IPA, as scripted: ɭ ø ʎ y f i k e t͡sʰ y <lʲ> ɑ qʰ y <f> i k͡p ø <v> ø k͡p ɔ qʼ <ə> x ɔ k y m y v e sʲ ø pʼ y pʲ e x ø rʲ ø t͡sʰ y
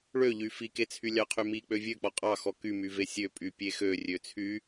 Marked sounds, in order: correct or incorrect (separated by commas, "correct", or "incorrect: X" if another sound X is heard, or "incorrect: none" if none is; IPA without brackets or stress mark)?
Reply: correct, incorrect: m, incorrect: vʲ, incorrect: ɑ